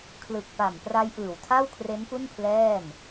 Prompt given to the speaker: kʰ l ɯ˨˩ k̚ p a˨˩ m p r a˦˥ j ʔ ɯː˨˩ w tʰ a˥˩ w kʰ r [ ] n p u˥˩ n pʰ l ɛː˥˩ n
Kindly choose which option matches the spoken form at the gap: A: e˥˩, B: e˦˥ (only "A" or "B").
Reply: B